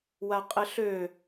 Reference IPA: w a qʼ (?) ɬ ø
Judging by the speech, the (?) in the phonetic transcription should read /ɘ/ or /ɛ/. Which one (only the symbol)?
ɘ